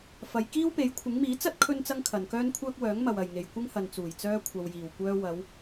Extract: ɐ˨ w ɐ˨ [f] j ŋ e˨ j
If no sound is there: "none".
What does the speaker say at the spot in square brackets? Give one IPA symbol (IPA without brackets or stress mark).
none